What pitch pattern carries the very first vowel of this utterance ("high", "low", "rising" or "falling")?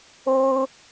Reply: high